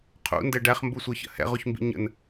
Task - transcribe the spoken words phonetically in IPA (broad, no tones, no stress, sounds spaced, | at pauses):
qʰ ṵ n d ɛ ɖ æ χ m b u sʷ ə˞ ç ə̰ h ɛ̰ ʁ u ç m b ḭ ɲ ə̰ n